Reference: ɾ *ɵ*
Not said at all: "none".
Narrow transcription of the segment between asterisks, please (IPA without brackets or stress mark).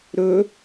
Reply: ɵ